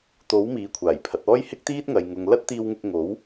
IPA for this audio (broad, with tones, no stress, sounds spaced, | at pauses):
t̪ o˨˥ w m iː˨˥ kʷʰ aː˨˩ j pʰ ɐ˨˥ t̚ ɔː˥ j h ɪ˥ k̚ t̪ iː˥ t̚ ŋ ɐ˨ j ŋ ʊ˨ ŋ l ɐ˥ t̚ t̪ iː˧ w ŋ ɪ˧ k̚ ŋ o˨˥ w